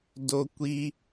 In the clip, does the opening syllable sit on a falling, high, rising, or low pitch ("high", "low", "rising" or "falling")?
high